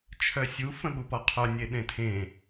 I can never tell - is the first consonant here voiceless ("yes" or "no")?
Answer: yes